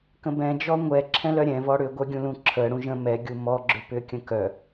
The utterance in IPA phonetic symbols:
k ə̃ b ɛ̃ d͡ʒ ɔ ŋʷ ɛ ǁʰ ɛ̃ l œ ɾʲ ɛ̃ v ɔ ɽ ʏ ɡʷ œ ɡʲ ũ l ũ ǁʰ ə ɽ ũ ʒ ə̃ m ɛ ɡʲ u m ɔ ɡ͡ǁ ʏ p ʏ kʲ ə̃ k œ

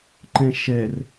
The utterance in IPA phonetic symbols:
ǃ ɛ̃ ʃ ɛ r

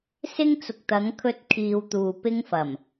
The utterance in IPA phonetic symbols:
s ɪ˥ ŋ t͡s ʊ˨ k̚ t̪ ɐ˨˥ ŋ kʰ ɵ˧ t̚ kʰ iː˨ w t̪ uː˨ p ɪ˥ ŋ f ɐ˨˩ m

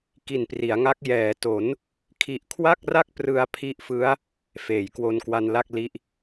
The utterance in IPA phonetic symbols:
k i˨˩ n p r i˩˦ a̯ ŋ a˦˥ k̚ j ɛː˩˦ t o˩˦ n | kʰ i˨˩ ʔ kʰ w a˥˩ k̚ r a˥˩ k̚ p r ɯ˧ a̯ pʰ i˦˥ ʔ f ɯ˦˥ a̯ | f eː˩˦ j k w o˧ n k w a˧ n l a˥˩ k̚ l i˦˥ ʔ

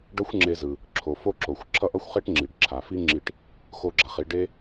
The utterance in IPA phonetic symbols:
ɖ ʌ˥ xʷ ŋ͡ǁ e˧ z ɯ˩ | ǁʰ o˩ f o˥ ǁ o˩ xʷ ǁʰ ʌ˥ ʔ ʌ˥ xʷ χ e˥ ʈ ŋ͡ǁ i˩ ɖ ǁʰ a˩ f i˥ ŋ͡ǁ i˧ ʈ | x o˧ ɡ͡ǁ a˩ χ i˧ ɖ e˥

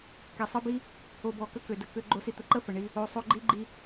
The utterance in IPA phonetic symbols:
k ɛ˨ sˤ ə˦ b i˦ | o˨ b ɔ˨ k ə˧ k ø˨ d ə˧ k ø˧ ɡ͡ǃ o˧ s i˧ t̪ ə˨ ǃ ə˦ f ə˨ ɳ i˧ | o˧ sˤ o˦ ɡ͡ǃ i˦ ɡ͡ǃ i˦

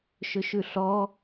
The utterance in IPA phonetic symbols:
ʃ ɵ ʃ ʉ ɬ ɔ

